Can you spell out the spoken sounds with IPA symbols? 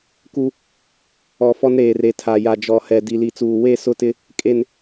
k u˦ | ɔ˨ f ɔ˦ n ɾ eː˨ r e˨ tʰ a˨ j a˨ d͡ʒ ɔ˨ h ɛ˨ d i˨ l i˨ t͡s uː˨ w e˦˨ s ʊ˦˨ t ɪ˦ | kʼ e˨ n

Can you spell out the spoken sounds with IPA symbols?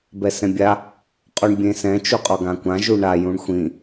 b ɛ s ɛ̃ bʲ a | qʼ u ɳ bʲ ẽ s ɛ̃ t͡ʃ u qʼ ɔ ɡ ã kʷ ã ʒ u ɳ a j ũ ɳ xʷ ĩ

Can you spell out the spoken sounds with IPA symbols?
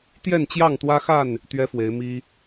t̪ j ɛ˥˨ n t͡ɕ j ɑ˥˨ ŋ t̪ w ä˦ x a˥˨ n | t̪ ɥ ɛ˦ f w e˨˦ ɪ̯ m i˦

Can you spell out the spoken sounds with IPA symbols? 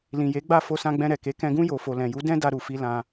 l ĩ˨ j e˨˦ ɡ͡b a˦˨ f o˧ s ã˧ ɡ͡b ɛ̃˧ ɾ ɛ˨ k e˨˦ k ɛ̃˧ ɡ ũ˦ j o˧ f o˧ l ɛ̃˨ j u˨˦ d ɛ̃˦ d a˦ ɾ u˧ f i˦ l ã˧

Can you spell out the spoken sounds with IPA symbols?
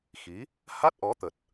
x i˨˦ | h a˦˥ t̚ ʔ ɔ˨˦ t̪ ə˨˩ t̚

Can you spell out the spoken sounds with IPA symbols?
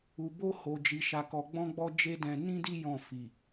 u˨ b o˧ h o˨ d͡ʒ i˨ ʃ a˧ k ɔ˧ ɡ͡b ɔ̃˦ ɡ͡b ɔ˦ d͡ʒ e˦ d ɛ̃˧ n ĩ˦ d i˦ j ɔ̃˦˨ f i˨

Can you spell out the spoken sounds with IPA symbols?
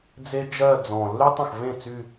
d͡z e˥ d͡ʒ ɜ˥˧ d͡z ɔ̃˨˩ lː y˥ tˤ ə̃˥˩ x v ẽ˥˩ t͡s y˥˧

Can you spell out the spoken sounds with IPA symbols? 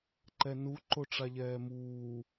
ǃ ɛ n u ǃ o ʈ͡ʂ a ʎ ɛː m uː

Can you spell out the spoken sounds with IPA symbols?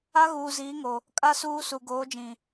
a˦ ɣ uː˨ z iː˨˦ ŋ o˨ | kʼ a˦ s uː˦ s u˨ ɡ oː˨˦ d͡ʒ ĩ˨

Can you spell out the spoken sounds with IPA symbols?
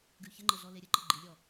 ɡ ʉ ç ə ŋ͡ǃ ə ɮ ɔ l e ɾʲ ə ǃ ə ɡ͡ǃ i lʲ ɔ

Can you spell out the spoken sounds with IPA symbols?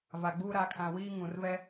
v a˨ ɡ͡b uː˦ ɾ a˨˦ kʰ ã˨ w iː˦ ŋ ũ˨ r v ɛ˦

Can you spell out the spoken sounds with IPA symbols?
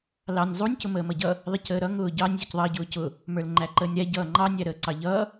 l ɑ nʲ zˤ u nʲ c ʊ m əː m ʌ ɟ ʌ | ðˤ i c əː ɾ ʌ ŋ ʊː ɟ ɑ nʲ zʲ ʊ c ðˤ ʌː ɟ ʊː c ʊ | m ə˞ l ŋ͡ǃ æ ǃ əː nʲ ɾ æ ɟ ʌː ŋ͡ǃ ɑ nʲ æ ɾ əː ǀ ɑ ʎ ʌː

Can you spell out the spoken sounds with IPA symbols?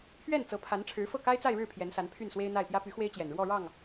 pʰ ɥ ɛ˥˩ n t͡s ɤ˧˥ pʰ a˧˥ n ʈ͡ʂʰ ɻ̩˧˥ f ɤ˥˩ k a˥ ɪ̯ t͡s a˥˧ ɪ̯ ɻ ɻ̩˥˩ pʰ j ɛ˧˥ n s a˧˥ n pʰ y˥˩ n s w e˥ ɪ̯ n̪ a˥˩ ɪ̯ p j ä˥ p y˧˥ x w e˥ ɪ̯ t͡ɕ j ɛ˨˩ n ɻ w ɔ˥˧ ɻ ɑ˥˩ ŋ

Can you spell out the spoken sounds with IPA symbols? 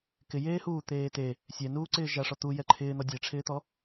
k ɪ j eː h uː t̪ eː t e | sʲ ɛ n uː ǀ ɪː ʒ a ʂ ɔ t̪ u j ɛ ǃʰ ɪː n̪ ɔ dʲ e ʈ͡ʂʰ ɪː t̪ ɔ

